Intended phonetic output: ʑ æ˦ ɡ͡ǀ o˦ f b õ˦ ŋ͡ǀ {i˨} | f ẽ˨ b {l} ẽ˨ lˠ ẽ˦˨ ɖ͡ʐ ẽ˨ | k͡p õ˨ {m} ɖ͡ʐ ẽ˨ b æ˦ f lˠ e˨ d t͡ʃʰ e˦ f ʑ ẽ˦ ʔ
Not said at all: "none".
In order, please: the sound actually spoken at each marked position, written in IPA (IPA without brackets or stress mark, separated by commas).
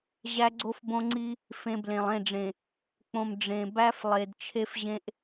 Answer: i˦, l, m